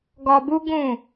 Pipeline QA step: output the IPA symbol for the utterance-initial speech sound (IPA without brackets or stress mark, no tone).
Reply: ɡ